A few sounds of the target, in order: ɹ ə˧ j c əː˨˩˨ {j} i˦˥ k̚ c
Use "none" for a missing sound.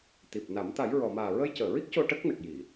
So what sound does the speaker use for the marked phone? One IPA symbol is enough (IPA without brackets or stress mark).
ɹ